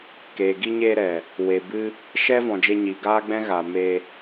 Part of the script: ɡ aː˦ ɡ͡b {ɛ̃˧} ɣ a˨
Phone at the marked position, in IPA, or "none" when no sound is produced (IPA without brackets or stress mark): ɛ̃˦